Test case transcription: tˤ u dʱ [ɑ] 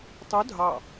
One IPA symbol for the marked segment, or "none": ɑ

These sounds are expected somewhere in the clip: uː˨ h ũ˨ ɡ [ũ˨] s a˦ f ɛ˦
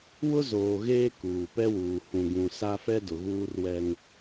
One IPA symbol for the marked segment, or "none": ũ˨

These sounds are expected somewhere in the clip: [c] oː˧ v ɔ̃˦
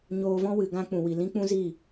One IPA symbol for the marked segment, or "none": ɲ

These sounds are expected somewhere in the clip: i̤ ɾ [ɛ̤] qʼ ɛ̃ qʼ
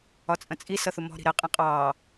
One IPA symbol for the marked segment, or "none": ɛ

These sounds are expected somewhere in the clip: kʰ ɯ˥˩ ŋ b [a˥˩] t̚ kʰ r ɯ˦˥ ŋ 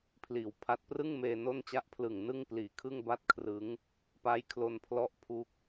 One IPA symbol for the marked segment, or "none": a˥˩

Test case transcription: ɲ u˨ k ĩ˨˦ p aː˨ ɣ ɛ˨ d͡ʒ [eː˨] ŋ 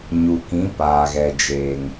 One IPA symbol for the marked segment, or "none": eː˨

